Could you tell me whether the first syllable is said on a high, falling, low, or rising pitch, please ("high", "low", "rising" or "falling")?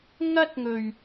high